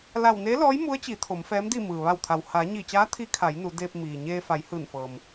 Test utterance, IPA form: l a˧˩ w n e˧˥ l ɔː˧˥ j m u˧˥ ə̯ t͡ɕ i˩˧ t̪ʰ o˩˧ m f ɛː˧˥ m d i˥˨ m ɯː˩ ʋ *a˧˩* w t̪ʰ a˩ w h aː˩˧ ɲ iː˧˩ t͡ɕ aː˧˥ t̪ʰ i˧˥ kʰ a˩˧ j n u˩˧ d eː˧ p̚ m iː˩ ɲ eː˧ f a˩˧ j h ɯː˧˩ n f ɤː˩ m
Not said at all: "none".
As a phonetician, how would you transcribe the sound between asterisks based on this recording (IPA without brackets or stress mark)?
a˧˩